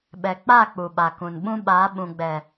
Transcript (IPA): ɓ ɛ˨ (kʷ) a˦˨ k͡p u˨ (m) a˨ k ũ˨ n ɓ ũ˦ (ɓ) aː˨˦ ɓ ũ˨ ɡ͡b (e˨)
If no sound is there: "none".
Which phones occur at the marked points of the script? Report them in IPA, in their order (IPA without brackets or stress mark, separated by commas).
k͡p, ɓ, ɓ, ɛ˨